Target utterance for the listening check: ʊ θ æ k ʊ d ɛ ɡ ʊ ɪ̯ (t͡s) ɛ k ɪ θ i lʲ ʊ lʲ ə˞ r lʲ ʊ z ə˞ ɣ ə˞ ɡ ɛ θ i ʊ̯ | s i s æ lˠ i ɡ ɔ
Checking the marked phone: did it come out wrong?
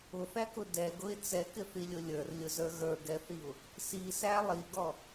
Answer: no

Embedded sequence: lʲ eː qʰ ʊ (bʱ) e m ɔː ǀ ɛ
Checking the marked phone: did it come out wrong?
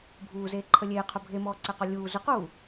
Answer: no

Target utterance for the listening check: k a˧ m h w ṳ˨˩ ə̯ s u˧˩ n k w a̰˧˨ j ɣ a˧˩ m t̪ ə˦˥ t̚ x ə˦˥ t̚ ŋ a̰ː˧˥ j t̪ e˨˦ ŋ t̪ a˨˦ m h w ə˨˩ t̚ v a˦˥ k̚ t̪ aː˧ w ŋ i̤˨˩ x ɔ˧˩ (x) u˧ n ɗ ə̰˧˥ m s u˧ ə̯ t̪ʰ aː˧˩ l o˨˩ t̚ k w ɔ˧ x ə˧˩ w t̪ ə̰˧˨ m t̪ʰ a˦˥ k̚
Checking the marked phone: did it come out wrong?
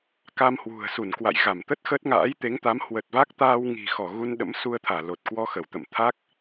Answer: yes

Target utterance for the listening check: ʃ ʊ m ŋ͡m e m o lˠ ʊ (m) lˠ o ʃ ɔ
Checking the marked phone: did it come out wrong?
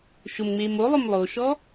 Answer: no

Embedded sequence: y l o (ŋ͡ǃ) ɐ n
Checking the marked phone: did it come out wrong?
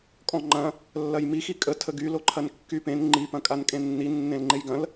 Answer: yes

